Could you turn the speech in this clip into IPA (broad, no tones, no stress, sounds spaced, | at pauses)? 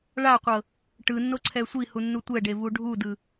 ɭ a qʷ ɤ | ʈ ɯ nː o ǀʰ ɛ sʷ i h u nː u tʷ ɛ ɖ e v u ɖʱ u d ɯ